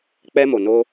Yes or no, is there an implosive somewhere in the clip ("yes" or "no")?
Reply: no